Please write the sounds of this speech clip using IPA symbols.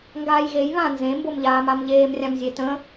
ŋɡaːjɣej βã nzẽ mbomʎaːmamʎeːm rʲãmzʲetə̃

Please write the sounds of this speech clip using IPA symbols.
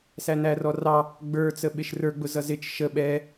sænærɔrɑ | ɡ͡bə˞t͡səɓɪʃ rə˞ɡ͡bʊ zʌzɪt͡ʃ ʃə ɓɛ

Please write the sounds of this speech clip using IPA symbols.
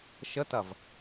ʃətɐv

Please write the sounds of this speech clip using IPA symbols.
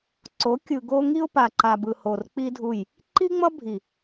ǀo˨˦ kʲɯ˨ɡo˧ ŋi˦ʊ̯pa˨ǃa˨ bɯ˨ho˨r k͡pi˦dʱu˦˨j | ǃi˦ŋ͡mʌ˦bʱi˨

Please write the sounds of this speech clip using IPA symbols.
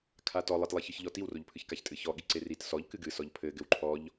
kʰatɔ lˠɘtlˠiçɨçʎɔ tiwroʎpʰɨçkaç tʼɨçɔ ɠiǀerit sɔʎ kɨɡɨsɔʎ pʰɘ ɡɘwǃʰɔʎ

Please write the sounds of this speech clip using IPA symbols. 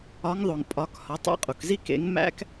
ɒ˨˦ŋðˤo˩ŋ pʼɒ˨˦khɒ˨˦tˤḛ˦˥qʼu˩k zi˥˧kḛ˨˦ŋ mæ̰˦˥k

